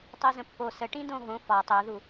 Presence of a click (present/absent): absent